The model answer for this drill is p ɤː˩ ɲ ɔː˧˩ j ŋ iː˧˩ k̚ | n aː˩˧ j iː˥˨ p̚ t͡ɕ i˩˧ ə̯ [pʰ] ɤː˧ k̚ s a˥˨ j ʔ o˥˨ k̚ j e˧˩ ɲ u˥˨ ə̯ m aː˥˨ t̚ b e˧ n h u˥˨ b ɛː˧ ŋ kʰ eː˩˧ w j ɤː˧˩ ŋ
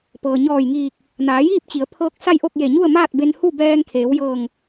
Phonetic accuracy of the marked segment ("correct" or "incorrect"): correct